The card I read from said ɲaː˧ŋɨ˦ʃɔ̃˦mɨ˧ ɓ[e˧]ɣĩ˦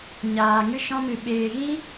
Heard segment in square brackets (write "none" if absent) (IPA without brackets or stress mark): eː˧